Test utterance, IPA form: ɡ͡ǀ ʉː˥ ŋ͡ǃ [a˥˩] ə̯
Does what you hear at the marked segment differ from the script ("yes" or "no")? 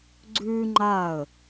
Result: no